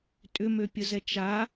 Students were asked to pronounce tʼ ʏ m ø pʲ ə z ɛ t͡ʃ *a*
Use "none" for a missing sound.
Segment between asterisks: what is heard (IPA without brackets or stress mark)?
a